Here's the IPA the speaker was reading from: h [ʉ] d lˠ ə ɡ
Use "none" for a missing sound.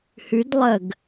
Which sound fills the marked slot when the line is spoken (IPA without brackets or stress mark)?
ʉ